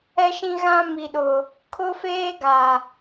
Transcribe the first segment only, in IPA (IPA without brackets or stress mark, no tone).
ɛ